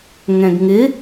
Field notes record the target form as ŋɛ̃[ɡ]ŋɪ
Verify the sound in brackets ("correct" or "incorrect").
correct